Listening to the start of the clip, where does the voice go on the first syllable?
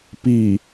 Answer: low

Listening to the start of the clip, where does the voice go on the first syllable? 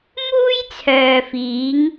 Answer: high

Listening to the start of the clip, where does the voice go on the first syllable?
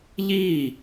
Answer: falling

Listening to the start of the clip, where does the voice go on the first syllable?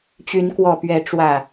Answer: rising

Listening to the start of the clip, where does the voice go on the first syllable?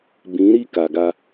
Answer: rising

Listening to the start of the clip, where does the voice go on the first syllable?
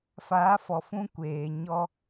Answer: rising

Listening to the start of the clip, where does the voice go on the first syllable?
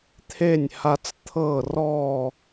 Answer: falling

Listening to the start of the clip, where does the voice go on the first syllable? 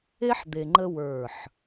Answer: high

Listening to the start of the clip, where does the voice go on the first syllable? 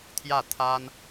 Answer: falling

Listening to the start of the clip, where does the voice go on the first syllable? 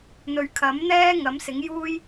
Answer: low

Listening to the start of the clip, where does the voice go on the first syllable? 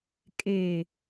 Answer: low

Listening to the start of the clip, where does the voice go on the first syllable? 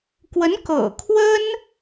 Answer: rising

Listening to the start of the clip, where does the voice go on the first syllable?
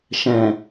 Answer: low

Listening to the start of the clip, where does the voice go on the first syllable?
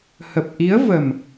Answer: low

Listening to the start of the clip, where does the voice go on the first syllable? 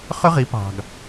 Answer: high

